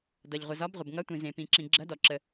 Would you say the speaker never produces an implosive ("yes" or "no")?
yes